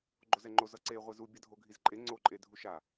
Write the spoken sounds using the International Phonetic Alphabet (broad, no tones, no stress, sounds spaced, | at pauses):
ɡ͡ǃ o z ɛ ŋ͡ǃ o z ʌ ǀ e ʁʷ e z u bʲ ʌ dʱ o ɡʱ i z ǃʼ e ŋ͡ǀ o ǃʼ e dʱ u ʃ a